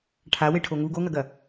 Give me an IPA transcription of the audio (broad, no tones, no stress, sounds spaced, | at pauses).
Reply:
ʈʰ a w e ʈʰ o ŋ u ɡ o ŋ ɐ ɡ ɐ